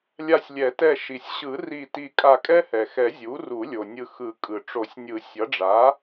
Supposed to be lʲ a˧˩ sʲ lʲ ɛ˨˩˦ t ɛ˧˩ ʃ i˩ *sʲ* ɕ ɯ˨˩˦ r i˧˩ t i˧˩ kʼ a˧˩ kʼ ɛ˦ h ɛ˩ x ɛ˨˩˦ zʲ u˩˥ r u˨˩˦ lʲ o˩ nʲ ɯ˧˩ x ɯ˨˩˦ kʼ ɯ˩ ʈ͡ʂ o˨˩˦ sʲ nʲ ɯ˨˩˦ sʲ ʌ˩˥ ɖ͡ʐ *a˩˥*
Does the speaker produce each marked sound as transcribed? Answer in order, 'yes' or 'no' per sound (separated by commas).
yes, yes